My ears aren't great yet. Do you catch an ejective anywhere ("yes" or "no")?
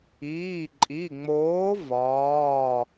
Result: yes